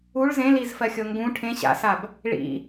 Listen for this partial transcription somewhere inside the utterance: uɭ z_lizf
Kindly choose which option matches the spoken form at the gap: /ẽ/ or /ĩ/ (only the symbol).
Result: ẽ